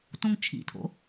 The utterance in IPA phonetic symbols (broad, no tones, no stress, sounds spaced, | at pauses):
t õ ŋ t͡ʃʰ ḭ tʰ o̰